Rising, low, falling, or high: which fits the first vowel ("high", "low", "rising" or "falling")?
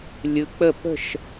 rising